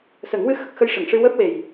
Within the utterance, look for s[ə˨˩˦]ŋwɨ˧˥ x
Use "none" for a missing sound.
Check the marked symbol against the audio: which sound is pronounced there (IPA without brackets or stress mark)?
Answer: ə˨˩˦